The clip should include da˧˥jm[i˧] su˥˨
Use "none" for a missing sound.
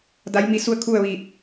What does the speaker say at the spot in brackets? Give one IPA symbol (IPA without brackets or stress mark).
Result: i˧